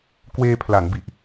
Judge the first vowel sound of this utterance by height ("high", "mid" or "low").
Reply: mid